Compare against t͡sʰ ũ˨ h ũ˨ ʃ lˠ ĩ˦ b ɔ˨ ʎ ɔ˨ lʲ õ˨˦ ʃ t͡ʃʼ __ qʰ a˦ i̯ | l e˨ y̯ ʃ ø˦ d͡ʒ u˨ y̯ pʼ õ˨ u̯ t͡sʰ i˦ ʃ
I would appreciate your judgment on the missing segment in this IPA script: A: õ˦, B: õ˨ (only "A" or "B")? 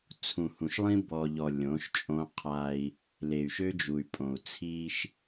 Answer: A